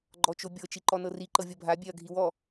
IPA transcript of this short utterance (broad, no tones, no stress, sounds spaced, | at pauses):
ɡ͡ǃ ɔ t͡ʃ o bʲ ɤ t͡ʃ i ǃ ɔ n ɤ r i ǃ ɤ vʲ ɤ bʱ a bʲ ɛ ɐ̯ ɡʱ i w ɔ